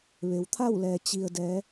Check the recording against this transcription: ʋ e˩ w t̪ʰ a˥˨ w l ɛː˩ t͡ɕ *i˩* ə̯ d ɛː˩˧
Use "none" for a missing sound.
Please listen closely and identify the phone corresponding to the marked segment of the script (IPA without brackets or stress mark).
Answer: i˩